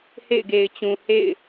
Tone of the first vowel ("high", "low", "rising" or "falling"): falling